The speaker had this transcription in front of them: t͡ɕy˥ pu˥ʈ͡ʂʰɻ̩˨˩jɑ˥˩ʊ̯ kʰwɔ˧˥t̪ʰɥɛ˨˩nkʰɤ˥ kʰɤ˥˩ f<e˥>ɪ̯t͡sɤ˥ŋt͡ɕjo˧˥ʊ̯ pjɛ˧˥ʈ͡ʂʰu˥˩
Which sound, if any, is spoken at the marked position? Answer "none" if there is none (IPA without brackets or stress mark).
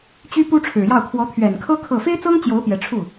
e˥